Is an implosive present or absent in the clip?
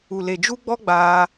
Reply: absent